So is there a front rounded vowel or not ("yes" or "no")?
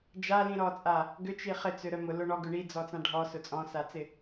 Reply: yes